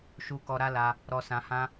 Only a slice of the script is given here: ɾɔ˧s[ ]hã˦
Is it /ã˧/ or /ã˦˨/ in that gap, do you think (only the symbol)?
ã˧